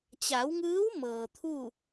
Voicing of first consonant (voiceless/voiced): voiceless